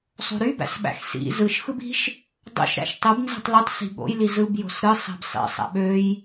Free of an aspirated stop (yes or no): yes